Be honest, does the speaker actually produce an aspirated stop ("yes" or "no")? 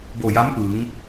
no